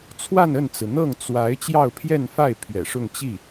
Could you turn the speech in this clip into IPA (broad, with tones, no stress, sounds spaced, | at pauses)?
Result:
t͡sʰ w a˥˧ n ə˥˩ n t͡s ɹ̩˩ n̪ ɤ˥˩ ŋ t͡s w a˧˥ ɪ̯ t͡ɕ j ɑ˥˧ ʊ̯ pʰ j ɛ˥˧ n f a˥˩ ɪ̯ pʰ ɥ ɛ̰˨˩ ʂ ʊ˥˧ ŋ t͡ɕ i˥˩